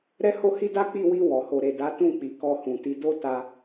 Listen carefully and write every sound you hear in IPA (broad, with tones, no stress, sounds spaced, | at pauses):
ɾ ɛ˦ h o˦ h i˦ d a˦ k͡p i˦˨ w i˧ w ɔ˨ h o˨ ɾ e˨ d a˨˦ t ũ˦˨ k͡p i˨ k ɔ˧ h ũ˨ t i˨˦ d o˦ t a˧